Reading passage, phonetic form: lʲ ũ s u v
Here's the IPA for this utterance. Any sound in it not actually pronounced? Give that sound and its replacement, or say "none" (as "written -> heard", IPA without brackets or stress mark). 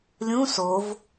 u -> o